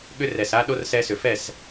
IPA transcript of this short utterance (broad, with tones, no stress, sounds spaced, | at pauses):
ɠ ʏ˦ r ɛ˨ s a˦ ɗ o˦ r s ɛ˧ s ʏ˨ f ɛ˦˨ s